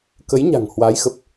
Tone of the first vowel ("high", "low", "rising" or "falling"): rising